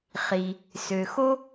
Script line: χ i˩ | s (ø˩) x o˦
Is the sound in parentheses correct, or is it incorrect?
correct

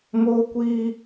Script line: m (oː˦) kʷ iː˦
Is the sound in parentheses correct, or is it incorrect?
correct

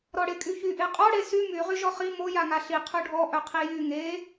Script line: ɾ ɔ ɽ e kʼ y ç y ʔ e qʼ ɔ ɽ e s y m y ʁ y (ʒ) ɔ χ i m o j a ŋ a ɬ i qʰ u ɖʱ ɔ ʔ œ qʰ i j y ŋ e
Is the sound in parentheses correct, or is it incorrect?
correct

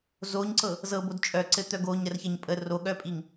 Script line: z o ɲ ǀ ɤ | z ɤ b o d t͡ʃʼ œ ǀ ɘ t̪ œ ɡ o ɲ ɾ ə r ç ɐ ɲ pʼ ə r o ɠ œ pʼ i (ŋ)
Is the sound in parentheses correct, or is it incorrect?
correct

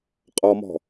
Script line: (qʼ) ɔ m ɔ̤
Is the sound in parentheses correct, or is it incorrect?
correct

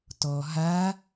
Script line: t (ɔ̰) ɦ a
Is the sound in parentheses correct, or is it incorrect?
incorrect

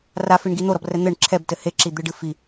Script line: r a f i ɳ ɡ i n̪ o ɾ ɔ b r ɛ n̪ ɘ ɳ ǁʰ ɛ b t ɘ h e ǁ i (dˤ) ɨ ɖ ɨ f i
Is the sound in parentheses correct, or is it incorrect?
incorrect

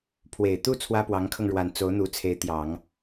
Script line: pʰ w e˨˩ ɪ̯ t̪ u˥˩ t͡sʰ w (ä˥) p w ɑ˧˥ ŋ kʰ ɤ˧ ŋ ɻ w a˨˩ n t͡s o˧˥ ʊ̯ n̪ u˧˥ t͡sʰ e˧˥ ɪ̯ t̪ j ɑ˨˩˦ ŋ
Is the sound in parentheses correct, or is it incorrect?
correct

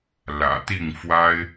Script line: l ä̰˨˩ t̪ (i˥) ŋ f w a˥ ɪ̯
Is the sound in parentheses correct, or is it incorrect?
incorrect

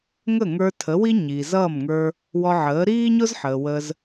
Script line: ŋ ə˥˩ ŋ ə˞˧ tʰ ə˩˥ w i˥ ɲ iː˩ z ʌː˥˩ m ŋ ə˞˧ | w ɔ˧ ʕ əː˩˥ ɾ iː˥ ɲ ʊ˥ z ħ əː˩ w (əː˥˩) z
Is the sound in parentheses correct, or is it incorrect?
incorrect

